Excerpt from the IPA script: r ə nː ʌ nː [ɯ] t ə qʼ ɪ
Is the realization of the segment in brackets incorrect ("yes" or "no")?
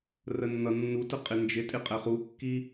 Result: yes